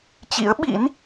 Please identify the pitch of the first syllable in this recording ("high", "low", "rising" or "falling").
rising